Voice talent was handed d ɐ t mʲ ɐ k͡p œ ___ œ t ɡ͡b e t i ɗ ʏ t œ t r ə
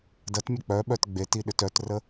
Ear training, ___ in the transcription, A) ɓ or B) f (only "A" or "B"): A